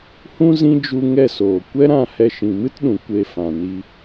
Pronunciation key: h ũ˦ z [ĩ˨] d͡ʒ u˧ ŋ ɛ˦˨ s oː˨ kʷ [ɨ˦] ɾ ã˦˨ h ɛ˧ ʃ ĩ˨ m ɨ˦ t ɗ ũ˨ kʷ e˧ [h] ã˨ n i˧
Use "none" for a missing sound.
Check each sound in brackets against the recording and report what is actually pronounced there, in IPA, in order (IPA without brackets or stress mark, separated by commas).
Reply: ĩ˦, ɛ˦, f